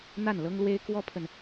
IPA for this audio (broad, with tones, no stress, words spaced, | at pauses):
n̪a˥˩n lɤ˥ŋlwe˥ɪ̯ kwɔ˥pʰə˨n